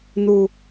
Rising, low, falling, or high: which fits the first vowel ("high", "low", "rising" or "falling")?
low